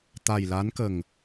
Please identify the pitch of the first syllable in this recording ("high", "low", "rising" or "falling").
low